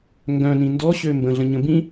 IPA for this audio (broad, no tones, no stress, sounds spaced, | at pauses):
ŋ ɡ œ̃ n ĩ n d ɔ ɕ ø m b ə̃ ɮ ə̃ ɲ ə̃ b ĩ